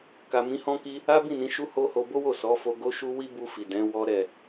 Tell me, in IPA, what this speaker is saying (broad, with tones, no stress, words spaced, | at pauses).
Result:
ka˨mĩ˨˦hɔ̃˦ki˦ | a˦bĩ˦˨nĩ˨˦ ʃu˦ho˦ho˧ bo˦wo˦˨ sɔ˨˦fo˧ ɡo˦ʃu˦ wi˦bu˧fi˨ dɛ̃˨˦wɔ˦ɾɛ˦˨